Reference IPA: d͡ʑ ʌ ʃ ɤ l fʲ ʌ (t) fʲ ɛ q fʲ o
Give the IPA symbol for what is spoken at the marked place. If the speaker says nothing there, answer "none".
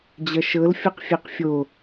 q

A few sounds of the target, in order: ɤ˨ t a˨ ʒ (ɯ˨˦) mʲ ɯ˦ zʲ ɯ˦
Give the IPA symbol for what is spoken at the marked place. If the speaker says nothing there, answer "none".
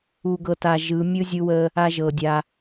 ɯ˨˦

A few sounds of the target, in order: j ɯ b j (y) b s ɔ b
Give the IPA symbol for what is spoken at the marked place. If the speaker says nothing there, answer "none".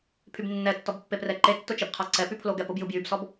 y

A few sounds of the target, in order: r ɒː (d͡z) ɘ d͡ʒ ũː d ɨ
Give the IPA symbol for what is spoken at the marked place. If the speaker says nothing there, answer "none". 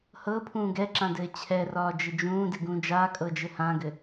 d͡ʒ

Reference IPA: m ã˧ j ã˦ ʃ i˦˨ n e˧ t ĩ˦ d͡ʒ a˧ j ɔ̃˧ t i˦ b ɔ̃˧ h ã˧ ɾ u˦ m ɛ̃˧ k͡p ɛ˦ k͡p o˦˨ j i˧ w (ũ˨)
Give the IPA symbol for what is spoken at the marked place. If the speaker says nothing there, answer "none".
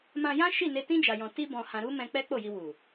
u˨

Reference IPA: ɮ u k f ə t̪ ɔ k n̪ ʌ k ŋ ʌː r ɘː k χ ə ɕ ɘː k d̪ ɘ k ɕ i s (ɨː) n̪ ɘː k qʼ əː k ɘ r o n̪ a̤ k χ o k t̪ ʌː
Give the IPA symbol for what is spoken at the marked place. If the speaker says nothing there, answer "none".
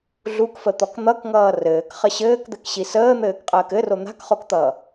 əː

